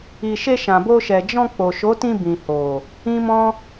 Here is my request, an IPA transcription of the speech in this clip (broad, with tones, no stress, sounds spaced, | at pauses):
i˨ ʃ e˧ ʃ ã˨ b o˧ ʃ ɛ˨ d͡ʒ ɔ̃˧ k͡p o˨ ʃ o˨˦ t ĩ˧ b ĩ˨ h o˨ | ĩ˦ m ɔ̃˦